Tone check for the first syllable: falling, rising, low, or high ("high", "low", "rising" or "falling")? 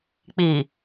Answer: low